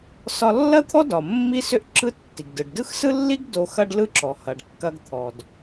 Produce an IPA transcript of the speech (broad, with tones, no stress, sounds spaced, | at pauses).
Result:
s ɒ˧ lː ɐ˥ t̪ʰ ɔ˥ d ɒ˩ mː i˥ s ʏ˥ ʔ ǁ ɯ˥ tː i˩ ɡ d ɯ˩ ɖ d ɯ˥ x s ɯ˥ lː i˥ ɡ d o˧ x ɐ˥ ɖ l ɯ˥ ǁ ɔ˩ h ɐ˩ ɖ kː ɐ˧ ɡ t̪ʰ ɔ˩ d